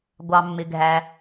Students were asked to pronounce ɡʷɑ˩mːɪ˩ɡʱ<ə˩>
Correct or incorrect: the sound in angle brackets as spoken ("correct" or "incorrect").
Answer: incorrect